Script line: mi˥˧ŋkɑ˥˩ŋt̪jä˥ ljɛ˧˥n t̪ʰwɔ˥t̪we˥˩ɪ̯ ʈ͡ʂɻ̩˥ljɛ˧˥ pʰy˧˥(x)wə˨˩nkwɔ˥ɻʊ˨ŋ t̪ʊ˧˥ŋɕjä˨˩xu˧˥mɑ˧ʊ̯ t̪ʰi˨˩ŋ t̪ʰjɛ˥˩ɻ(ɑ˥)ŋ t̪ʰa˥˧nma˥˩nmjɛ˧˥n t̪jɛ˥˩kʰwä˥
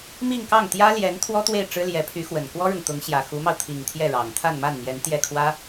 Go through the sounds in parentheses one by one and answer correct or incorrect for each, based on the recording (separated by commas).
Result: correct, incorrect